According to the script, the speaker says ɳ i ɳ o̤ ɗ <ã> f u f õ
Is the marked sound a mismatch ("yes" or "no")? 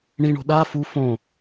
yes